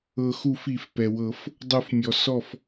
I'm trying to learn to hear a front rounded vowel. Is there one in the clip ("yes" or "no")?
no